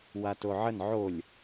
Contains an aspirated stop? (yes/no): no